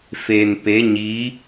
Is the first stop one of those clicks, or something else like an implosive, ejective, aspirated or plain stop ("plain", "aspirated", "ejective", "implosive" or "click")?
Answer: plain